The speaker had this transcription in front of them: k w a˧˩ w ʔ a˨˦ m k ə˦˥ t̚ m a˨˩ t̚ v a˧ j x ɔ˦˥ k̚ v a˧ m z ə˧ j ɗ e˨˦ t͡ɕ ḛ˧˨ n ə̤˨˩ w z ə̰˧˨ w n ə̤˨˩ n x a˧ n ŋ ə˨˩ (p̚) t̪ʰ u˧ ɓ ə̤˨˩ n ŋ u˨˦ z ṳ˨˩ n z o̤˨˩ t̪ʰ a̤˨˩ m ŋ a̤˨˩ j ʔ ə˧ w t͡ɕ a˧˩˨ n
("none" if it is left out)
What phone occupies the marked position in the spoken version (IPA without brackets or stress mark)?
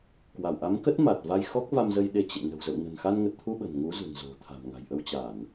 t̚